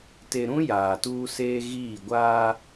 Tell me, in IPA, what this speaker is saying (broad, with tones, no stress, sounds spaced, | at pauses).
t e˨ ɾ ũ˦ j aː˨ t uː˦ s eː˦ ɣ iː˦˨ ɡʷ aː˦